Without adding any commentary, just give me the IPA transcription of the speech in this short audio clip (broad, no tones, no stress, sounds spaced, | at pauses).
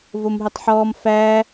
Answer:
v o m ɦ ɵ tˤ ħ ɔː m f æ